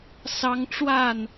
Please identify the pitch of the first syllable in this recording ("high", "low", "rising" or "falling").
high